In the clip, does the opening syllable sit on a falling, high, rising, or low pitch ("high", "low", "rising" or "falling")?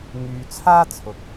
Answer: low